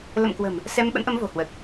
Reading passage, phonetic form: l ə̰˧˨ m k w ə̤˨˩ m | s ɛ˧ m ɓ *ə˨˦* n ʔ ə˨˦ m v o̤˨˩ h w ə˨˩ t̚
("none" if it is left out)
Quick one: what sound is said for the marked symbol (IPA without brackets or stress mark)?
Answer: ə̰˧˥